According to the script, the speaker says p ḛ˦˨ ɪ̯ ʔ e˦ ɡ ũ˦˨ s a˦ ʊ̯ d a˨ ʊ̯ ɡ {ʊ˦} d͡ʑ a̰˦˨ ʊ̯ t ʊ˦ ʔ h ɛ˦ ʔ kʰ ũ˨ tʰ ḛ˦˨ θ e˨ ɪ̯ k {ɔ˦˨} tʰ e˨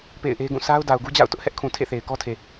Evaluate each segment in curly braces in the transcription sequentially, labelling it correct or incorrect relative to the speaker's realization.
incorrect: u˦, incorrect: ɔ˦

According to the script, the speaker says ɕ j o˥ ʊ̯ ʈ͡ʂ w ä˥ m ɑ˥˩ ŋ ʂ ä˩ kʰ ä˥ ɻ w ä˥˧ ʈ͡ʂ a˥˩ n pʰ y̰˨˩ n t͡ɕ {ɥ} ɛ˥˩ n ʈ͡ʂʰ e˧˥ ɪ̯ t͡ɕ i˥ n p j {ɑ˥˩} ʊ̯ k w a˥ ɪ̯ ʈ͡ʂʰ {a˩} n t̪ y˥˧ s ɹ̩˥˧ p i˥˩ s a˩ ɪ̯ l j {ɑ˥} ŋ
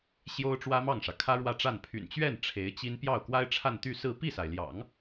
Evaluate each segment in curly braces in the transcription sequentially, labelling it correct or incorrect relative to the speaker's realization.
correct, correct, incorrect: a˥˧, incorrect: ɑ̰˨˩˦

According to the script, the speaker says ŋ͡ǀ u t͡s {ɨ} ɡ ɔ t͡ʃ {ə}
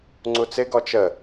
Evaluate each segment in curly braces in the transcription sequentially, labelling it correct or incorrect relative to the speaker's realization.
incorrect: ɪ, correct

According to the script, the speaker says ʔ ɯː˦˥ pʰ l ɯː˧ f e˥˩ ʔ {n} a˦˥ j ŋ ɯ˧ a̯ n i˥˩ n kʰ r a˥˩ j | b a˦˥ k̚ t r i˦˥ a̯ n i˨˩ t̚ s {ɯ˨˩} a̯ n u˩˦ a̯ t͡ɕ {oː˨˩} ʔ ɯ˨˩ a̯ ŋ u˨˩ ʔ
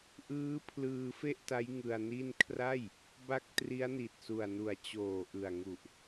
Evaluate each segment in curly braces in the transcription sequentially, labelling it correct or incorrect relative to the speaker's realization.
incorrect: t, incorrect: u˨˩, correct

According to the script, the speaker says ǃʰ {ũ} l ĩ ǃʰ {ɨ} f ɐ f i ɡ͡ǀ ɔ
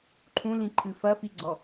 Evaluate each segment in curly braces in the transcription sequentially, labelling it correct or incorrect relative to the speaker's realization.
correct, correct

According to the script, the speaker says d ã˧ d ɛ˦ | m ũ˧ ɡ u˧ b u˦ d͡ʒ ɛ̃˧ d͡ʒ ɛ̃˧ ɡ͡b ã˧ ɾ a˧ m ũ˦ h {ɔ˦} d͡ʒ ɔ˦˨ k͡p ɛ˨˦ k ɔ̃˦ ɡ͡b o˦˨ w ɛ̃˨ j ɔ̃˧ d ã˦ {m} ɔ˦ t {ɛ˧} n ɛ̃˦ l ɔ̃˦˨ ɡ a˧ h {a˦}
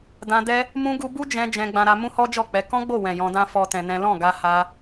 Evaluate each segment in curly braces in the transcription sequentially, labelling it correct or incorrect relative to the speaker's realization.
correct, incorrect: f, incorrect: ɛ̃˧, correct

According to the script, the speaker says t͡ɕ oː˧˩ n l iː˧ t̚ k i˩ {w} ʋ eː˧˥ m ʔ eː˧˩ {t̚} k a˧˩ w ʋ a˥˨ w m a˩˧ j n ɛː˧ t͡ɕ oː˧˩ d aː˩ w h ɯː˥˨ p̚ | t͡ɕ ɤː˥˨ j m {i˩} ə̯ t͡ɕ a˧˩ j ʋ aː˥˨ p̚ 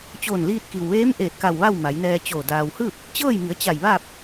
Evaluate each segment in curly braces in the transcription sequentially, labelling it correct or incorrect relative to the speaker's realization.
correct, correct, incorrect: i˩˧

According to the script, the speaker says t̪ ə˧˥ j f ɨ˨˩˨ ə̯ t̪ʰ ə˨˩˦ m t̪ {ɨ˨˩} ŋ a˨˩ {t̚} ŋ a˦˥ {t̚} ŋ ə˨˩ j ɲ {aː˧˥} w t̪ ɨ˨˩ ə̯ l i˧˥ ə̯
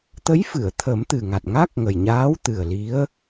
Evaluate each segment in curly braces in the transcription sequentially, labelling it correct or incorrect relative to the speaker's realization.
correct, correct, incorrect: k̚, correct

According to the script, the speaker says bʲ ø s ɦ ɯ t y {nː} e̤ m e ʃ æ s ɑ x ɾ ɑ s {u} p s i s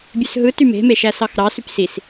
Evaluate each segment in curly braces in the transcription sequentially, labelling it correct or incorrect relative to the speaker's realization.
incorrect: m, incorrect: y

